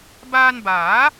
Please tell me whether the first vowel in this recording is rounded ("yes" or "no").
no